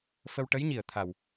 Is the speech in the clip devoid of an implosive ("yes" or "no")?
yes